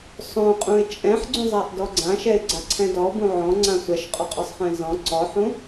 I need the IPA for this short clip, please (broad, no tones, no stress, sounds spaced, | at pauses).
sˤ õ qʼ ũ ɪ̯ t͡ʃʼ ɛ̃ ħ ɡ͡ǀ ũ zˤ a ʔ d ɔ ɡ͡ǀ ã ʃ ɛ ɪ̯ ɡ͡ǀ a ǀʰ ɛ̃ d ɔ b ũ ʕ ɔ̃ ŋ͡ǀ ã sʷ ɛ ʃ qʼ ɔ qʼ ɔ sˤ χ ɛ̃ z ɔ̃ ǀ ɔ ħ ũ